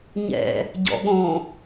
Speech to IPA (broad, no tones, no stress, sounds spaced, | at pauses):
ɲ ɛ̰ | ɟ ɔ̰ ɠ õ